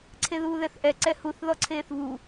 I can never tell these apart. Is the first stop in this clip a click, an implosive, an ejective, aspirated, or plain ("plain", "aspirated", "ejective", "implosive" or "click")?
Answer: click